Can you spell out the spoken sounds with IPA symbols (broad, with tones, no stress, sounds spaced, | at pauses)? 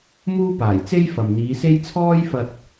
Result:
m uː˥ p aː˨˩ j t͡s e˥ j f ɐ˨ m n̪ iː˨˧ s e˥ j t͡sʰ ɔː˥ j f ɐ˧ t̚